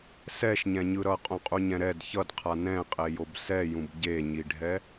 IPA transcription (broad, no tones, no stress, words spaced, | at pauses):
sɛʃɲɛ̃ɲɯ ɾʌqʼõqʼuɲɛ̃ ɾɛd çʌdqʰa nɛ̃qʼejob sɛjũb ɟeɲiɖʱɛ